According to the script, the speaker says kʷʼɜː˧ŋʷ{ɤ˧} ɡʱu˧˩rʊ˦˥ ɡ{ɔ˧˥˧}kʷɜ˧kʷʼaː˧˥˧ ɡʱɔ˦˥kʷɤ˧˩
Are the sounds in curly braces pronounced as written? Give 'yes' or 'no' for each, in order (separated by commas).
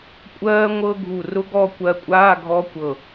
yes, no